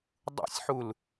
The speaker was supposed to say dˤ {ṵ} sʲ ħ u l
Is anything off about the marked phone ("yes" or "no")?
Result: no